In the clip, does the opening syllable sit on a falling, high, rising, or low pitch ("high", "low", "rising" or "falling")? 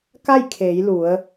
falling